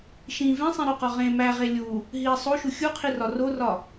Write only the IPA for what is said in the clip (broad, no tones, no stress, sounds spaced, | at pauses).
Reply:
ʃ ĩ v ẽ sˤ ĩ ɾ u q ɒ ʁ ẽ m æ ʁ e lʲ u | ɦ i sˤ o ʃ u xʲ u qʰ i r ɒ r o r ɒ